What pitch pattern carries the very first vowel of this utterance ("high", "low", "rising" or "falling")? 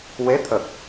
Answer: rising